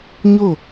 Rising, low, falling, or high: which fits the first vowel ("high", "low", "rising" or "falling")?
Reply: falling